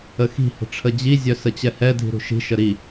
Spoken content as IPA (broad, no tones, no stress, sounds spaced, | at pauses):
ə x i̤ h ə̤ ʈ͡ʂʰ ə d͡ʑ i zʲ œ s ə t͡ɕ ɛ h ɛ dʱ i̤ ɾ ṳ ʃ i̤ ʃ ə ɾ i